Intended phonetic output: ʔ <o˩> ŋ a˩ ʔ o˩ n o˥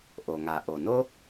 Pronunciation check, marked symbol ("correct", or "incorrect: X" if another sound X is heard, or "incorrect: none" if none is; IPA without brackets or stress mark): correct